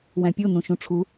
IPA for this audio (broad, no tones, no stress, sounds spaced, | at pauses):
w æ̃ pʲ o n ũ ʃ ũ ʈ͡ʂʰ u